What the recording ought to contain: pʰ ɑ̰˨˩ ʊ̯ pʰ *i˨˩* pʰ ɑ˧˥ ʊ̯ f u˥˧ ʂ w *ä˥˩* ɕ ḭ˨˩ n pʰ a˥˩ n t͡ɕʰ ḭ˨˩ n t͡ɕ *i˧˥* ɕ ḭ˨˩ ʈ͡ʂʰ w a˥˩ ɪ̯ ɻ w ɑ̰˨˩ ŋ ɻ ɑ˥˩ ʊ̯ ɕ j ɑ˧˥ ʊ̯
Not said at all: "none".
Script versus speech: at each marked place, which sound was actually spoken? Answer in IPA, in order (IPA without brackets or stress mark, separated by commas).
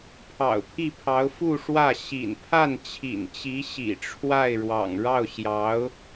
i˥˩, ä˥˩, i˧˥